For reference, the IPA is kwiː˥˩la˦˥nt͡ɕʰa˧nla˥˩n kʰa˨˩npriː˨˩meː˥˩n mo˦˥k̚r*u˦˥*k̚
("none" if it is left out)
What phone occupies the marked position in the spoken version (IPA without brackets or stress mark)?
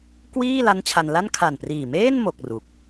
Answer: u˦˥